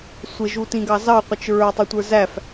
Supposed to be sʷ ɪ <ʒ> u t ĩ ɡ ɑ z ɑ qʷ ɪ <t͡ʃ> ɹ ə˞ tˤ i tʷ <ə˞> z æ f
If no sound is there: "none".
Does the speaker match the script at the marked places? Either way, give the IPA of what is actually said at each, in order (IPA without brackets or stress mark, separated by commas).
ʒ, t͡ʃ, ə˞